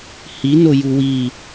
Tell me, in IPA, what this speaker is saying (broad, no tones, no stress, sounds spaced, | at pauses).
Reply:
h i n o j u w i